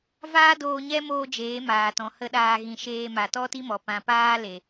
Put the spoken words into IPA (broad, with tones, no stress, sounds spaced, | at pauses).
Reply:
v aː˦ d oː˧ ɲ ɛ˦ m oː˧ d͡ʒ eː˨˦ m aː˨ t ɔ̃˨ h ə˦ ɗ aː˧ ɣ ĩ˧ ʃ eː˧ m a˨ t ɔ˦ t i˦ m ɔ˨ p ã˨ p aː˧ l e˨